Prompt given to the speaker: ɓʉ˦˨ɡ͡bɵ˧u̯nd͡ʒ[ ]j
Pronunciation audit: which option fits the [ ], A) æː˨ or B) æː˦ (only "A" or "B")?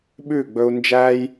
B